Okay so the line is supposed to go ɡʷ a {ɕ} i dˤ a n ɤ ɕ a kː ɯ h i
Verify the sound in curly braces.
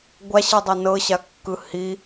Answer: correct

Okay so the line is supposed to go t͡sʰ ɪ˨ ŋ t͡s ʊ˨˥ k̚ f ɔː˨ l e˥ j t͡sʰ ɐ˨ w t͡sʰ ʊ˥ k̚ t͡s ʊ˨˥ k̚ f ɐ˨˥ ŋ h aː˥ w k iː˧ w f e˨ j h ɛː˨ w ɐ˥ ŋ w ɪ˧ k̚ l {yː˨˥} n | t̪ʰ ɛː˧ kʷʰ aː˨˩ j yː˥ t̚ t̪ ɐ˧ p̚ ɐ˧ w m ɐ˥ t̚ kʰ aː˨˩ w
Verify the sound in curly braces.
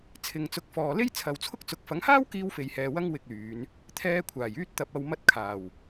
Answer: incorrect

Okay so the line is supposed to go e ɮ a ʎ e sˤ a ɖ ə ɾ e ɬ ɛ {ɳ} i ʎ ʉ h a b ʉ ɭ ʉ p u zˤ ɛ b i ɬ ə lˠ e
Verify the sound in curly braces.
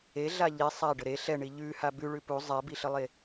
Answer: correct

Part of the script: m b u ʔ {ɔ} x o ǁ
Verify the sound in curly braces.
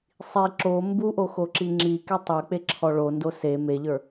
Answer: incorrect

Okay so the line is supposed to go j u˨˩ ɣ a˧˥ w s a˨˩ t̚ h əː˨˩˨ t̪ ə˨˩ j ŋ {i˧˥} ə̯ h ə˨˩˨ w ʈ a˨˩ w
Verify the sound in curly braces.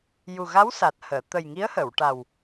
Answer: correct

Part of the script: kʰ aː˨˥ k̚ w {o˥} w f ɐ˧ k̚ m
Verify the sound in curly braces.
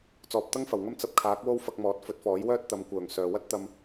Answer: correct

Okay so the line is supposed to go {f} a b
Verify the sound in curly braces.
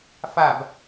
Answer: correct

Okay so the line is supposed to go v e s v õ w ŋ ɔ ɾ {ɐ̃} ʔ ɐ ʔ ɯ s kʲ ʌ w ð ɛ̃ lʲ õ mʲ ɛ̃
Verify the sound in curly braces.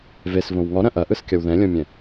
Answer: correct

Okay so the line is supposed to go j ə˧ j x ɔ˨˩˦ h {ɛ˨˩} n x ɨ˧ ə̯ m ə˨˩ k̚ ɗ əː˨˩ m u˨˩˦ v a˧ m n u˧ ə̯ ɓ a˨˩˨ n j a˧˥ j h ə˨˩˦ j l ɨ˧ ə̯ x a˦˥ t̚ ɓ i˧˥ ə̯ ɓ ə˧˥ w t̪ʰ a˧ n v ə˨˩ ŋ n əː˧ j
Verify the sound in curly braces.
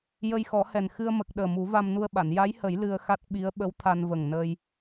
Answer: correct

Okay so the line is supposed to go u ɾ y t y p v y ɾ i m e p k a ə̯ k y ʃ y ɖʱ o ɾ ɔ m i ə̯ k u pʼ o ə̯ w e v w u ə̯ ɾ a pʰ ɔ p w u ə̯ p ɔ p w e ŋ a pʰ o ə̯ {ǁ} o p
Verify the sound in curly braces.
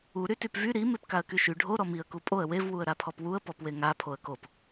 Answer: incorrect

